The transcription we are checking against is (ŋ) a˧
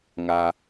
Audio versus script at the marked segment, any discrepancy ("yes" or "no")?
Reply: no